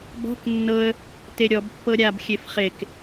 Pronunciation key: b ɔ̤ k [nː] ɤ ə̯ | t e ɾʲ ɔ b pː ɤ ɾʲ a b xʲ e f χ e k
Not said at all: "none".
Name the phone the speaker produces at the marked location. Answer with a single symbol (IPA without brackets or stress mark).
nː